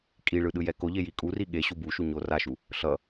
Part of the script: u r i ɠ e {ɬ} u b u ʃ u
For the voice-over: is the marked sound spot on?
no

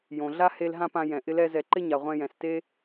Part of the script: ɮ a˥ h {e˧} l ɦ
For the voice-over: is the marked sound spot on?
yes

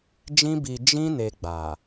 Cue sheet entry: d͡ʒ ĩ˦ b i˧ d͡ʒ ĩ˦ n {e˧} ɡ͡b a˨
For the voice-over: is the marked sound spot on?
yes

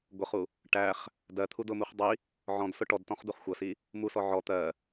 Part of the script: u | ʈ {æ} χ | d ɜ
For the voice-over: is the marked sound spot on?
yes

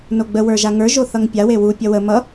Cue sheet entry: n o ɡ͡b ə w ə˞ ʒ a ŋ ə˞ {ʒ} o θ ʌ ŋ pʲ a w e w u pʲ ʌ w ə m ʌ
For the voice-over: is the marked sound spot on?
yes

